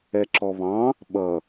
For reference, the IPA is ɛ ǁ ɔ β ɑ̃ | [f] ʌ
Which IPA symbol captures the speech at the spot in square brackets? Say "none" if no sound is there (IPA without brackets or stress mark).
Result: ɓ